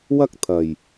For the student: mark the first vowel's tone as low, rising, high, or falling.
high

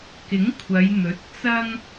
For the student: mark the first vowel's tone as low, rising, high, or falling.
rising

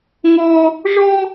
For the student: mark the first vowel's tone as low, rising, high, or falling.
high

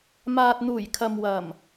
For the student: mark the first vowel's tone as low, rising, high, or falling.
low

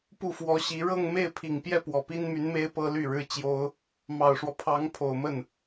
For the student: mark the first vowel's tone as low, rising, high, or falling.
falling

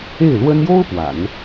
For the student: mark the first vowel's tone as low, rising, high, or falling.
falling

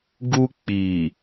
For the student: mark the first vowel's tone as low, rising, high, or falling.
high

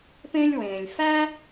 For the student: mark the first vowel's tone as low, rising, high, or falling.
high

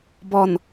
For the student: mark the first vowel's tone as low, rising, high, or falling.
low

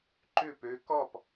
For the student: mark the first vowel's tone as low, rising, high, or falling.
falling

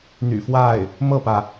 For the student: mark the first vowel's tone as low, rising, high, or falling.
low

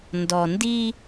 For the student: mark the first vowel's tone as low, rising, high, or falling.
low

